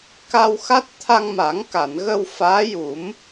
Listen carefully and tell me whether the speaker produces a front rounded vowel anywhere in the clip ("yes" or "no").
no